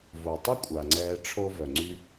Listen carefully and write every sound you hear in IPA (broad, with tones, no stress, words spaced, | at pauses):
vo˩tˤʊ˥kʷʼa˩ŋ͡ǀɛː˨ ʈ͡ʂʰo˦vœ˩ŋ͡ǀy˦